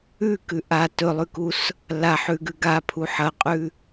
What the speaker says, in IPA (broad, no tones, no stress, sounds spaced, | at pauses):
ʉ k ʉ ʔ a t ɵ lˠ ʉ k u s | l a ħ ʉ ɡ ʉ ɡ a pʰ u ħ ɐ qʼ ʉ